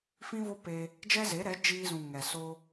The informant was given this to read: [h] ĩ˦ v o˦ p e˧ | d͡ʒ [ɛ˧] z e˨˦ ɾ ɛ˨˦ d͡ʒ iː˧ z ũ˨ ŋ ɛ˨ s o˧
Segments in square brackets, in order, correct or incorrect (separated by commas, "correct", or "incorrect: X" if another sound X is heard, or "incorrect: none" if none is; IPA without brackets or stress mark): incorrect: f, incorrect: ɛ˦